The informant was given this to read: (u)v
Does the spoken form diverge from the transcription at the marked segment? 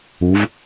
no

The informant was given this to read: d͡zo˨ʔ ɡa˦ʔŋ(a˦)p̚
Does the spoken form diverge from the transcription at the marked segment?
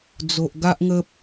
yes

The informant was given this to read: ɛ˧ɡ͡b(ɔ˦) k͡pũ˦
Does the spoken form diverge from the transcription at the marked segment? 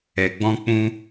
yes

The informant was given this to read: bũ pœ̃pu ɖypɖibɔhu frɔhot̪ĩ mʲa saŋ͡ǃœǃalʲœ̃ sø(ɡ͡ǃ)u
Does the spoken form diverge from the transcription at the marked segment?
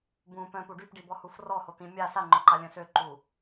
yes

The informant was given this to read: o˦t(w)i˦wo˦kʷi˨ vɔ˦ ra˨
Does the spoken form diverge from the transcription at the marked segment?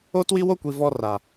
no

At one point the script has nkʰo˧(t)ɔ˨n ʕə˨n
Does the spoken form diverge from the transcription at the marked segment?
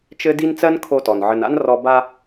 no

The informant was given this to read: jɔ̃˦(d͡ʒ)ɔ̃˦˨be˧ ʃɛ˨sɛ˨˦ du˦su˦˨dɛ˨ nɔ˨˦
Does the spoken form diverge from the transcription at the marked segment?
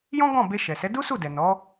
yes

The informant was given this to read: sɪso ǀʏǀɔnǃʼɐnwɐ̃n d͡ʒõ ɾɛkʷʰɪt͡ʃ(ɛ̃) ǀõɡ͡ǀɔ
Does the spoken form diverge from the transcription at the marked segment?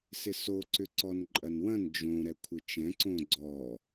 no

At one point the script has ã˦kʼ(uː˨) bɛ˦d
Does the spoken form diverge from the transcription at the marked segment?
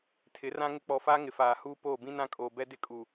yes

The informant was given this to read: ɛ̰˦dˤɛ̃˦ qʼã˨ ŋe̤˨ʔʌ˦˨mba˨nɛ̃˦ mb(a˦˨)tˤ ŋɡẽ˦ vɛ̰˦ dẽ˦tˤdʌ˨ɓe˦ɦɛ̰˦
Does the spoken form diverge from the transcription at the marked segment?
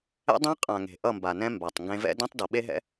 yes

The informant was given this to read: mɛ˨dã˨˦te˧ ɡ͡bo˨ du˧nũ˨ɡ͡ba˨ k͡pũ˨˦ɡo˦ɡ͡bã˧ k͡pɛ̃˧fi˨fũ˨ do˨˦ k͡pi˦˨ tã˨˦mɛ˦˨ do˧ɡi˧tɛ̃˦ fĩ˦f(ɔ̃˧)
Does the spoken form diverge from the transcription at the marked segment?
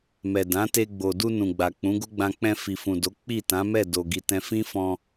no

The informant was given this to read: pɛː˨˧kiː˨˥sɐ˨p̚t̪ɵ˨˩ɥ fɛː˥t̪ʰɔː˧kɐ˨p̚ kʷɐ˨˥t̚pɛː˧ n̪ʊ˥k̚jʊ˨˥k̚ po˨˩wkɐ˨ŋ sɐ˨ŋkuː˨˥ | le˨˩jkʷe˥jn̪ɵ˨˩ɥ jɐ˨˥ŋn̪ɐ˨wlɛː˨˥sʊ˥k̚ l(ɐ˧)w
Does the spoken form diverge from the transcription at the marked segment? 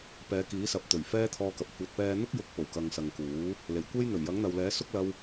no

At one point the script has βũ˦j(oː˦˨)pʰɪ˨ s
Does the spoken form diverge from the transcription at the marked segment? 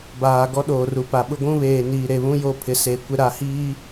yes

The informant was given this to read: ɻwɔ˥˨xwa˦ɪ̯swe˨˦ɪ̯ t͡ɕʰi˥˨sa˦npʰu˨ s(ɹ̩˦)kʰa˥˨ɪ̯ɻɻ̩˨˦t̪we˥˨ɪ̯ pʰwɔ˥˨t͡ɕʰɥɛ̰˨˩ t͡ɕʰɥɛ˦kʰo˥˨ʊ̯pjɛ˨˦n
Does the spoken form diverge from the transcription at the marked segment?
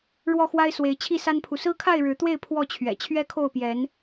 no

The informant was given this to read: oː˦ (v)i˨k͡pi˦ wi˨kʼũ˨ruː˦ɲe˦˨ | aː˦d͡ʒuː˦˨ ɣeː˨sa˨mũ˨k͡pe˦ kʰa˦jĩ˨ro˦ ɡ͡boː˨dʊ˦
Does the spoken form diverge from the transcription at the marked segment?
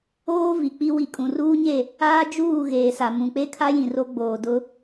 no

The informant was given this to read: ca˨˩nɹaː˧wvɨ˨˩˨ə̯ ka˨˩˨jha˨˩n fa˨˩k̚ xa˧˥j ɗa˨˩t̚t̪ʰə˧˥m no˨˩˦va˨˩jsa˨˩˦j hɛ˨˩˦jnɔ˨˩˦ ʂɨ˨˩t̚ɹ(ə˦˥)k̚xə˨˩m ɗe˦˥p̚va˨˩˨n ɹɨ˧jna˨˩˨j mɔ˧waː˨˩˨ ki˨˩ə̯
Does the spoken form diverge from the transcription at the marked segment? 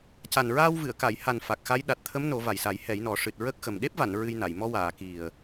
no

